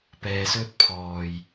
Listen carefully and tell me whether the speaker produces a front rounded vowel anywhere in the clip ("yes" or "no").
no